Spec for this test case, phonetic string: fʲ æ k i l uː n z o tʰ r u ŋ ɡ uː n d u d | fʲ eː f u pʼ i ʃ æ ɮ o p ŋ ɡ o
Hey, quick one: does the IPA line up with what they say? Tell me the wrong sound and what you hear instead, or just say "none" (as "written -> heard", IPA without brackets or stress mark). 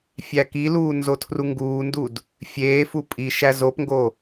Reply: ɮ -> z